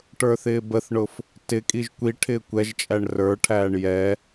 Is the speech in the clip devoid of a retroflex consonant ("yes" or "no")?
no